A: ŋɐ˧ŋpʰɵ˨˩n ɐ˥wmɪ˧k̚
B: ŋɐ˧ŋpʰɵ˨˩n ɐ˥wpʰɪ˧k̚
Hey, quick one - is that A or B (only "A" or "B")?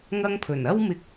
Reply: A